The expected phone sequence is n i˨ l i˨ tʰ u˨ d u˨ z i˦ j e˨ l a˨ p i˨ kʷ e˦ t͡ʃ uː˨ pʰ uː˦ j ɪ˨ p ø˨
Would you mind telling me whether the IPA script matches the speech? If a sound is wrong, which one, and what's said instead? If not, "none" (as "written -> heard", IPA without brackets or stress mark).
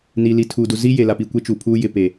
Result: ø˨ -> e˨